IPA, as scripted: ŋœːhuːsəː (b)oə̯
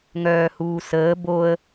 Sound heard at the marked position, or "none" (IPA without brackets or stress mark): b